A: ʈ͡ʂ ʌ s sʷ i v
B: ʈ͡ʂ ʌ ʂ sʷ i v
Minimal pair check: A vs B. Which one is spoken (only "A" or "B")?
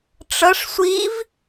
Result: B